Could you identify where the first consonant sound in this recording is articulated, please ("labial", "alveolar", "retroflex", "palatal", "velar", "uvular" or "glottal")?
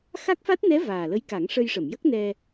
velar